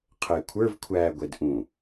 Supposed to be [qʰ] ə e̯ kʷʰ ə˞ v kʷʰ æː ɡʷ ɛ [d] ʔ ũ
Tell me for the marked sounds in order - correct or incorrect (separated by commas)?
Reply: correct, correct